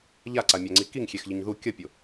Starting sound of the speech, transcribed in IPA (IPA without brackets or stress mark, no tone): ʎ